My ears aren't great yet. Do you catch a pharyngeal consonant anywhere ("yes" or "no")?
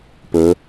no